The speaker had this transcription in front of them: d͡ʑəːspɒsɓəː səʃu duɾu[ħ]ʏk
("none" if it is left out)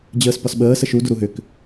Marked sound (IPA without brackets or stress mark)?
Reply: ɦ